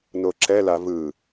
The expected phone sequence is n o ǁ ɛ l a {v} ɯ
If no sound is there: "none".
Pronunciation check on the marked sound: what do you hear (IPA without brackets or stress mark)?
v